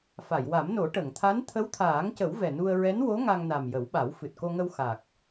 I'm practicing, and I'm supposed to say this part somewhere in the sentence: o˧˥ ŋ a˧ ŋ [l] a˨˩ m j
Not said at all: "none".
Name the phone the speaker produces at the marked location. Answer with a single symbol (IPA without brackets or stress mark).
n